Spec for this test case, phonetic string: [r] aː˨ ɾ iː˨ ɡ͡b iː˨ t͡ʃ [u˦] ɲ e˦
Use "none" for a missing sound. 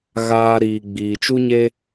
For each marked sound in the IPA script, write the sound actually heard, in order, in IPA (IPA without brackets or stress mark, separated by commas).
ɣ, u˦